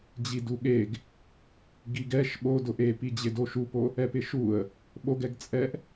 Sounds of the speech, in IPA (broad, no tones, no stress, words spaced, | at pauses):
d͡ʑiduɠeɡ | ɡiɡɛʃ ɓodʊ ʔepid͡ʑɪdo ʃupo | ɛpɪʃuə̯ | ɓoɡɛɡt͡sʼɛʔ